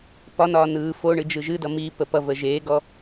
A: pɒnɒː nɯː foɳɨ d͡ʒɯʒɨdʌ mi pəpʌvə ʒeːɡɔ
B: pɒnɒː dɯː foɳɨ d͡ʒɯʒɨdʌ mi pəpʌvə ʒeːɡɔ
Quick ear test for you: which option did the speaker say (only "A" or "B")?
A